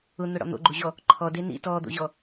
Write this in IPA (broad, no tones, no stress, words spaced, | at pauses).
ʊn̪ʊɽɔ̰ n̪o̰ɡ͡ǃuʑɔ | ǃʰɔde nḭ tɔd̪o̰ʑɔ